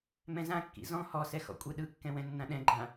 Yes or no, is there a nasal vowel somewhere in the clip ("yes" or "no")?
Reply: yes